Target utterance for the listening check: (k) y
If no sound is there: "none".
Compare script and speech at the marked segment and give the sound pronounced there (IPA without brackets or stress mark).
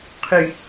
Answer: qʰ